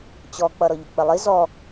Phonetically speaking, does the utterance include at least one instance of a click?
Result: no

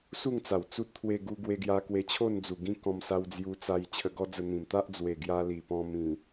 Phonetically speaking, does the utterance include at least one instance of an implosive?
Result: no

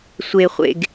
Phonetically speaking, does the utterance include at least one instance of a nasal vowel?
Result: no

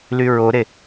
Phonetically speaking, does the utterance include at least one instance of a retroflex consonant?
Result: no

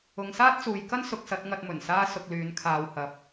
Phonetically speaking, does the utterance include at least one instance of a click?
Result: no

